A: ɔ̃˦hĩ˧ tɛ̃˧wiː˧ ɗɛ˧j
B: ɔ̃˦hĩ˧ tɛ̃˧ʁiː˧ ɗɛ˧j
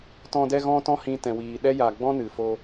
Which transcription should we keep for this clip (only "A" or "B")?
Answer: A